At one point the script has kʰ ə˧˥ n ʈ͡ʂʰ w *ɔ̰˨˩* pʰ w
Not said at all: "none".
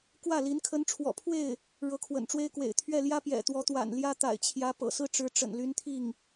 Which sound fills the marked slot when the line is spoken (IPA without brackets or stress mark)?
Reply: ɔ̰˨˩